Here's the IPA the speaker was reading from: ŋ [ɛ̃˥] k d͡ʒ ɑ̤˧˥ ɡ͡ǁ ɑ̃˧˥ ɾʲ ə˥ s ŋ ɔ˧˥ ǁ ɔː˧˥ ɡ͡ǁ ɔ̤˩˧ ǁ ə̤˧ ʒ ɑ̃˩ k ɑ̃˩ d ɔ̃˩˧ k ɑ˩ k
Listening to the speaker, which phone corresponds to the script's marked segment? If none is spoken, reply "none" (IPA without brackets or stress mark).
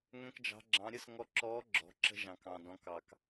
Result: ɛ̃˥